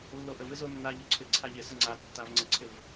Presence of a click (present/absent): present